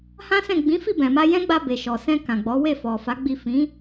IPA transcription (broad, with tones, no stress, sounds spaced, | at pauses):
h ã˦ s ɛ̃˦˨ ɡ͡b ĩ˨˦ f i˦˨ b ɛ̃˨ m a˧ j ɛ̃˦ ɡ͡b a˧ b e˨ ʃ ɔ˨ s ɛ̃˧ k ã˨ ɡ͡b ɔ˨˦ w e˦˨ f ɔ˨ f a˨˦ ɡ͡b i˦˨ f ĩ˨˦